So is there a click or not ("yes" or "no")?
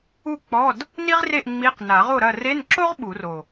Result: yes